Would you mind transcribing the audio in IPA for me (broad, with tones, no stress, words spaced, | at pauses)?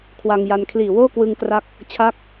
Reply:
kʰwa˧ŋja˧n kʰliː˨˩woː˥˩kwɯ˧ŋkra˦˥k̚ | t͡ɕʰa˦˥k̚